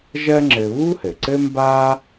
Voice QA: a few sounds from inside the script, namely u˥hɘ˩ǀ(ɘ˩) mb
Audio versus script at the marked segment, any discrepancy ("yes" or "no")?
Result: yes